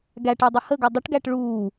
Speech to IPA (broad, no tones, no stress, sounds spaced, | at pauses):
ɡ æ ʈ e dˤ ə h ə ɡ ə dˤ ə ʈ ɡ æ ʈ ɭ uː